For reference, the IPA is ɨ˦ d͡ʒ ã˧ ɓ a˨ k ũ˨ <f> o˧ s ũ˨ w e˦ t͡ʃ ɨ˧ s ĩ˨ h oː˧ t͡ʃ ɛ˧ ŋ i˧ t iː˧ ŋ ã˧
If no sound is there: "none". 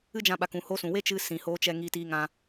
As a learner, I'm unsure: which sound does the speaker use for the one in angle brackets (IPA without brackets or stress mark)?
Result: h